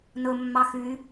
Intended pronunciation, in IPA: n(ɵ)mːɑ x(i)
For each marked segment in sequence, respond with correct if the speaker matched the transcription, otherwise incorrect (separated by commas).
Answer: correct, incorrect